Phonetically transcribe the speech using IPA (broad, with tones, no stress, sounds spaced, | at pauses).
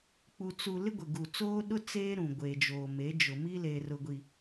k͡p u˨ t͡s u˨ l ɪ˦ ɡʷ ɪ˨ ɡ u˨ t͡s oː˦ ɗ ʊ˦ t͡s eː˦ ɾ ũ˨ ɡʷ e˨ d͡ʒ oː˨ m e˨˦ d͡ʒ ʊ˨ m i˦ l e˨ r ʊ˨ ɡʷ i˨